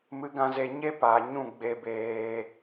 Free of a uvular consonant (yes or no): yes